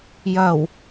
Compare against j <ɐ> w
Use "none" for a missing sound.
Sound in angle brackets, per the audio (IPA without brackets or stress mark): ɐ